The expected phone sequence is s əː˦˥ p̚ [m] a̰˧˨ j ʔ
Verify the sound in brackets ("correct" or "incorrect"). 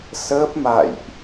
correct